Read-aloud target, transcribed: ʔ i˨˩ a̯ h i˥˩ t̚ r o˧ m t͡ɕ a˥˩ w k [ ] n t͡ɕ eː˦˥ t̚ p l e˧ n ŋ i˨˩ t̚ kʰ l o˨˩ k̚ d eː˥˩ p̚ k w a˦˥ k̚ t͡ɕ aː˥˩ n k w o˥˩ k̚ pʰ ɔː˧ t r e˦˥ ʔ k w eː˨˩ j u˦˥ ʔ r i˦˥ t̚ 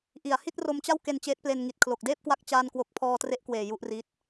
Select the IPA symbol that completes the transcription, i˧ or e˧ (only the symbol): e˧